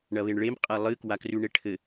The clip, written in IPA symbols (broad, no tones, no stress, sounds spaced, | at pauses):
ɳ ɐ β e ɳ ɭ e m qʼ a lˠ ɨ k w a k r ʉ ɳ e ʈʰ ɘ